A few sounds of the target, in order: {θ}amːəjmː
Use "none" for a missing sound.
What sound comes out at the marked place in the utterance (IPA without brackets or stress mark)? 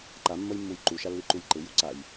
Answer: ǃ